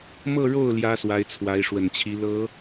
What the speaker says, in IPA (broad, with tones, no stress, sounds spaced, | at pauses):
m ɤ˥˧ ɻ o˥˩ ʊ̯ l j ä˥ s w a˧˥ ɪ̯ t͡sʰ w a˧˥ ɪ̯ ʂ w ə˨˩ n t͡ɕʰ i˧˥ l ɤ˧˥